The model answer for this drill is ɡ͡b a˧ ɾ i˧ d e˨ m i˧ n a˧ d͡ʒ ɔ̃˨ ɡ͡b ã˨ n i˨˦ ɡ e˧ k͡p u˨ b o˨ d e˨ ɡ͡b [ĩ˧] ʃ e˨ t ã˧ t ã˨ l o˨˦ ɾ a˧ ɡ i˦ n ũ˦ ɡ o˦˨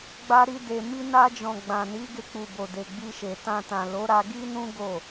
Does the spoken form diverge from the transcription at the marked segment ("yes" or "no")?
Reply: yes